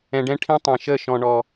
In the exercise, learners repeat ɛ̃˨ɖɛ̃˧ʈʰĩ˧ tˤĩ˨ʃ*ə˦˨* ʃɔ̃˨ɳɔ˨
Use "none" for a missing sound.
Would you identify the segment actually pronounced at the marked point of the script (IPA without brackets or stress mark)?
ə˦˨